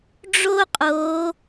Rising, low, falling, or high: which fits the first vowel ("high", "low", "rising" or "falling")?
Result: high